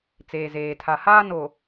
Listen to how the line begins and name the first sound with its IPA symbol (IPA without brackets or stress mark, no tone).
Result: t͡s